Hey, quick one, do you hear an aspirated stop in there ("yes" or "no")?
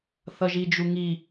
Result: no